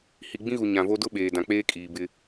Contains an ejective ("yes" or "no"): yes